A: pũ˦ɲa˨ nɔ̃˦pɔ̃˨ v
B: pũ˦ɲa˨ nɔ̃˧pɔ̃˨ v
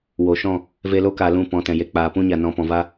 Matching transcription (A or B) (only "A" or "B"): B